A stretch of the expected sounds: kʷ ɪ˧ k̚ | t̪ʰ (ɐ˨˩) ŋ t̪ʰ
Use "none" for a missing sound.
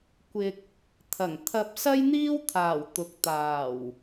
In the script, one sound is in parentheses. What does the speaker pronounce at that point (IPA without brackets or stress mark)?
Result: ɐ˨˩